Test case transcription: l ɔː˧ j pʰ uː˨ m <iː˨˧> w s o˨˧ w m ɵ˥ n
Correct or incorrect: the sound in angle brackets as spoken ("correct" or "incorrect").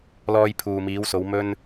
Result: correct